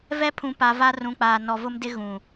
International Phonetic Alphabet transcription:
v ɛ˦ pʰ ũ˨ p a˨ v a˦ r ũ˨ k͡p aː˨ n ɔ˨ v ʊ˦ m d ɪ˦ ɣ ũ˨

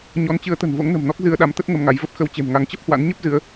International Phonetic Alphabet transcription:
ɲ ɔ˨˦ n t͡ɕ ɨ˨˦ ə̯ t̪ ə̤˨˩ n v o̰˧˥ ŋ n ə̤˨˩ m n ɔ˦˥ k̚ z ɨ˧ ə̯ ɗ a˨˦ m t̪ ə˦˥ t̚ ŋ ə˧ m ŋ a˨˦ j v ə˦˥ p̚ x ə˧ w t͡ɕ e̤˨˩ m ŋ a˨˦ ŋ t͡ɕ ə˦˥ p̚ h w a̰˧˥ n ɲ ə˦˥ p̚ z ɨ˨˦ ə̯

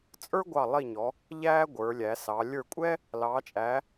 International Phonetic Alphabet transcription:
t͡sʼ ə˞˥ ɡʷ ɑ˧˩ lˠ i˧˩ ɲ ɔ˩˧ | ʎ æː˥ ɡʷ ə˞˩˧ lʲ æ˩˧ s ɑ˩˧ lʲ ə˞˧˩ kʷʼ ɛ˥ | l ɑː˩˧ t͡ʃʼ æ˩˧

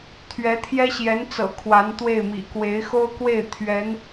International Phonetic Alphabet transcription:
t̪ʰ ɥ ɛ˧˥ t̪ʰ j ɛ˥ ɕ j ɛ˧˥ n t͡s ɤ̰˨˩ kʰ w a˧˥ n t̪ w e˥˩ ɪ̯ m ḭ˨˩ k w e˧˥ ɪ̯ x o˥ ʊ̯ k w e˥˩ ɪ̯ t̪ʰ ɥ ɛ˧˥ n

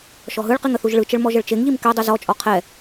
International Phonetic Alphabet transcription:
ʃ ɔ ɦ ɯ ɭ q i ŋ ə θ u ʒ ɭ ɯ t͡ʃ ə ɭ m ɔ ʒ ə ɭ t͡ʃ e ŋ ʎ i m k ɛ dˤ ɯ z ɔ t͡ʃʼ ɔ qʰ ɛ

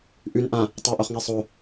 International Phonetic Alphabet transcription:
ʔ ʉ n ʔ ã | tˤ æ ʔ o χ ŋ ɛ sˤ o

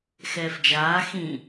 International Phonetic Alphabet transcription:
x ɛː f d͡ʒ aː x ĩ

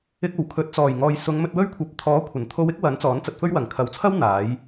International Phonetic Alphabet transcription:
ɪ˧ k̚ o˨˩ w kʰ ɵ˨˥ t̚ t͡s ɔː˨˩ j ŋ ɔː˨ j s ʊ˨˧ ŋ m ɵ˧ t̚ w ɵ˥ ɥ kʷʰ ɐ˨˥ p̚ t̪ʰ ɔː˨˥ kʷʰ ɐ˨˩ n t̪ʰ o˧ w ɪ˥ k̚ w ɐ˨˥ n t͡s ɔː˨˥ n t͡s ɐ˧ t̚ f ɵ˥ ɥ w ɐ˨˩ ŋ kʰ ɐ˨ w t͡sʰ ɐ˥ w n̪ aː˨˥ j

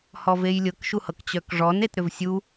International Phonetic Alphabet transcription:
h ɔ v e j lʲ ɤ k ʃ u h ɤ k t͡ɕ œ k ʐ ɔ n e t ɾ ʏ v sʲ u

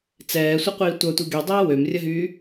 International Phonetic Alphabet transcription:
t͡s ɛː sʷ ə qʷ iː tʷ œ tʷ i ɡ y dˤ ɛː w ø m rʲ ə ɦ yː

